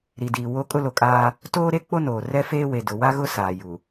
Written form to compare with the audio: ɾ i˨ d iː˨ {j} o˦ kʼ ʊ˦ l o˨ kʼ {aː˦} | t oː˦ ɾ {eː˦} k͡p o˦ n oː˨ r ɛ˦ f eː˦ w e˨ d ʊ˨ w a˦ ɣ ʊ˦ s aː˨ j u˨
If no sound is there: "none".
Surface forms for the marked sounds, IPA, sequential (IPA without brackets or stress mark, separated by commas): w, aː˦, e˦